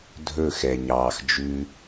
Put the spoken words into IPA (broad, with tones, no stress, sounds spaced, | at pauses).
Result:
dʱ ɵ˦˨ x ɛ˨ ɲ ɑː˨ x d͡ʒ ʉ˦